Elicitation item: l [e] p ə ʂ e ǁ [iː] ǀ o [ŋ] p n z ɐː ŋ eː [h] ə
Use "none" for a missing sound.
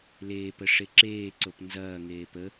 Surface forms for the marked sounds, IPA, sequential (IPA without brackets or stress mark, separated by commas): eː, eː, none, p